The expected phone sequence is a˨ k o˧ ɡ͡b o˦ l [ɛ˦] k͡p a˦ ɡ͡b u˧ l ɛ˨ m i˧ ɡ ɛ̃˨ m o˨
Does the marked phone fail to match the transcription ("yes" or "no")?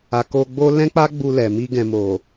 yes